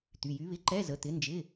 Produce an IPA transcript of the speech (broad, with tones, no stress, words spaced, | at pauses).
t̪y˩˧˩jy˨˥βɪ˧˥˧ ǃɛ˧˥˧zə˩˧˩ t̪ɪ˨˥nd͡ʒɪ˧˥˧